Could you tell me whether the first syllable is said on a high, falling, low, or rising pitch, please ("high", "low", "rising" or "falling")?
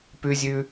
high